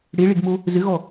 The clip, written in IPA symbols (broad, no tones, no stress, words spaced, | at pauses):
ɽeɭeɡmo | zɘɣɔ